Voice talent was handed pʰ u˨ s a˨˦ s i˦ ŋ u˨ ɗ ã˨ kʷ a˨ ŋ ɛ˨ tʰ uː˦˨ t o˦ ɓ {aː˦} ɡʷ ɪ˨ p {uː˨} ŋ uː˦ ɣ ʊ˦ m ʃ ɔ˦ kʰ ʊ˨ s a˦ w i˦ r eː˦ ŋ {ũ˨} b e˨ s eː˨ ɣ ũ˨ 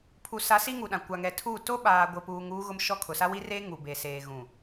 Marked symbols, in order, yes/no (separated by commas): no, yes, no